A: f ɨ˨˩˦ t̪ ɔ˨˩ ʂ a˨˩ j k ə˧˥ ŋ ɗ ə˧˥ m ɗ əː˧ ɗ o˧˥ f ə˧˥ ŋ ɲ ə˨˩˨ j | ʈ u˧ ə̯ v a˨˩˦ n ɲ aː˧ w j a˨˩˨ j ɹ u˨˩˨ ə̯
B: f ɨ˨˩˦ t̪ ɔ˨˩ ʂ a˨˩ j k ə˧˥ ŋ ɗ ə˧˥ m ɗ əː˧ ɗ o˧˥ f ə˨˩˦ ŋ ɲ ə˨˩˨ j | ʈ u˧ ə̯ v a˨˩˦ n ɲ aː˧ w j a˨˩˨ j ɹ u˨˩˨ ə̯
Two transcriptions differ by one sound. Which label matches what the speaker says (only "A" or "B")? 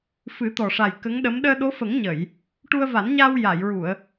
B